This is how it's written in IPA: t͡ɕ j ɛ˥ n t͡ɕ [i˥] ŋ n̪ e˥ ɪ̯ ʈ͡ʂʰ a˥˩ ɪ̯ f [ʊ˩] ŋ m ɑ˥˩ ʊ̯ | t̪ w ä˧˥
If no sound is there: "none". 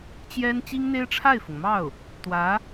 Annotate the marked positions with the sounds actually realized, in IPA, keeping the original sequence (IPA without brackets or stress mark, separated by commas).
i˥, ʊ˩